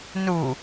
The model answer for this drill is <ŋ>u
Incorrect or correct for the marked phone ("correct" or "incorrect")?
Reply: incorrect